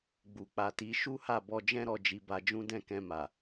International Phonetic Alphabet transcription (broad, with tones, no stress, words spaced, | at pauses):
ɡ͡bu˨ k͡pa˨ti˨˦ ʃu˦ha˦˨bɔ˧d͡ʒɛ̃˦ ɾɔ˦˨d͡ʒi˧ba˧d͡ʒũ˦ dɛ̃˦˨kɛ̃˧ma˨